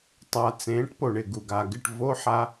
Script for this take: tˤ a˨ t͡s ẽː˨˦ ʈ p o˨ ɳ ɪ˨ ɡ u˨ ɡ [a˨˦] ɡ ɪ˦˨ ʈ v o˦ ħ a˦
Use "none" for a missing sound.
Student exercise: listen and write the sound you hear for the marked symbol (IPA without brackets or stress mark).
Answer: a˨